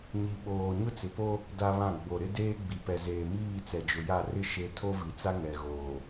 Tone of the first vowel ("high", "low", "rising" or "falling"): low